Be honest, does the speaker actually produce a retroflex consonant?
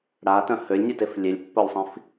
yes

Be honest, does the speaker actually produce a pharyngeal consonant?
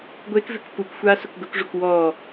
no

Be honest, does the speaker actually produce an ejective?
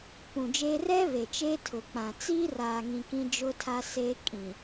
yes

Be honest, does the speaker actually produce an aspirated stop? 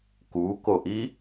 no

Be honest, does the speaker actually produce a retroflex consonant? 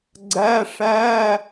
yes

